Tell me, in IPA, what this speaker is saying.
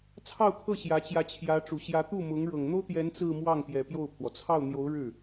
t͡sʰ ɑ˥˧ ʊ̯ kʰ ɤ˥˩ ɕ j ä˧˥ t͡ɕ j ä˧˥ t͡ɕʰ j ä˧˥ ʈ͡ʂ u˨˩ ɕ j ä˧˥ t̪ u˥˩ m ʊ˧˥ ŋ ɻ ɤ˨˩ ŋ n̪ o˥ ʊ̯ t̪ j ɛ˧˥ n t͡s ɹ̩˥˧ m w ɑ˥˩ ŋ p j ɛ˨˩ p j o˥˩ ʊ̯ pʰ w ɔ˩ t͡sʰ ɑ˥˩ ʊ̯ n̪ j o˧˥ ʊ̯ ɻ ɻ̩˥˩

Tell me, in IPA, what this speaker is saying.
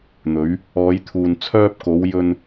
n̪ ɵ˨˧ ɥ | ɔː˨˧ j t̪ʰ uː˨ n t͡sʰ œː˧ p̚ k o˨˧ w j ɵ˧ n

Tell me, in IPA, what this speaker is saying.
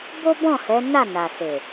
b o˦ b ɔ̃˦˨ h ɛ˨˦ n a˦˨ n a˨ s e˨

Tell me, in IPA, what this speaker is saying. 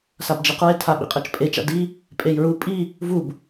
s a b d͡ʒ e q ɹ e tʰ a ɓ ḭ qʼ ɤ t͡ʃ pʼ e t͡ʃ a̰ d i | pʼ e j ɹ u pʼ i | v u b

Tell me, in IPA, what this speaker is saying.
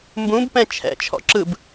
m b ũ b p ɛ̃ t͡ʃʰ ɛ̰ t͡ʃʰ ɔ̰ ǁ ɯ b

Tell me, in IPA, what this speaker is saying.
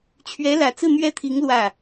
t͡ɕʰ ɥ ɛ˧˥ l ä˨˩ t͡s ɹ̩˥˧ n̪ ɥ ɛ˥˩ t̪ʰ i˧˥ ŋ l w ä˥˩

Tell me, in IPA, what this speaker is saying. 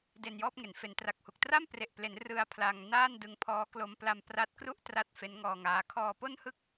d e˧ n j ɔː˥˩ p̚ ŋ e˩˦ n f e˩˦ n t r a˨˩ k̚ h u˨˩ k̚ t r a˥˩ m p r e˨˩ ʔ p l e˩˦ n r ɯ˧ a̯ pʰ l a˧ ŋ n aː˥˩ n d ɯ˧ ŋ pʰ ɔː˦˥ k l o˧ m p l a˧ m p r a˦˥ t̚ k r u˥˩ ʔ t r a˦˥ t̚ f e˦˥ n ŋ ɔː˧ ŋ aː˦˥ kʰ ɔː˧ p o˥˩ n h ɯ˥˩ k̚

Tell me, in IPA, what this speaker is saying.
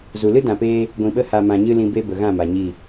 z u˨ l ɨ˦ d ã˨ p eː˧ | ɡʷ ĩ˨ ɓ ə˧ h a˨ m ã˨ ɲ ɨ˦ l ĩ˧ b e˦ b ə˨ ɣ ã˦˨ m a˨ ɲ i˦˨

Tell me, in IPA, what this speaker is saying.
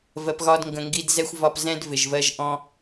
v ɜ˨ p ɣ ɒ˧ d ŋ ɡ ə̃˨ ŋ ɡ i˧ d z ɛ˧ xʷ v ɒ˧ p z ɛ̃˦ d v ɪ˨ ʒ v ɜ˧ ʒ ʔ ɔ̃˦

